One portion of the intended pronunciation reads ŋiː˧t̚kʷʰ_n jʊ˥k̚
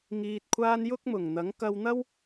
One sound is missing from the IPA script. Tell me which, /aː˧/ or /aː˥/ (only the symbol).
aː˥